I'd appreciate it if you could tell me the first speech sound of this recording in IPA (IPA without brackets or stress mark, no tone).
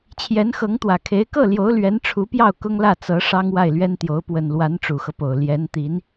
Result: t͡ɕʰ